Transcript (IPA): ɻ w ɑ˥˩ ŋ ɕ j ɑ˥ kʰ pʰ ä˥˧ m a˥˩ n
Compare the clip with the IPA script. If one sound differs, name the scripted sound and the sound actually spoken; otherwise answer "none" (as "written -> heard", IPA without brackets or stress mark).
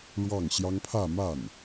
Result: kʰ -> ŋ